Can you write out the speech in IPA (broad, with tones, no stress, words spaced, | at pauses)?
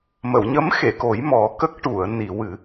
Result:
mə˨˩˨wɲə˧˥mxe˨˩˨ko˨˩˦j mɔ˨˩˦kə˦˥k̚ ʈu˨˩˨ə̯ni˨˩˨wɨ˨˩˦